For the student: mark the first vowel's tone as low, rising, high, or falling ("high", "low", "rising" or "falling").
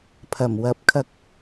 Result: low